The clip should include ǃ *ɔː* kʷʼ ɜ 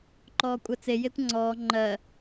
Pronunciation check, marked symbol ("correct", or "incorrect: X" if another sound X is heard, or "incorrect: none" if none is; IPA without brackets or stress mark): correct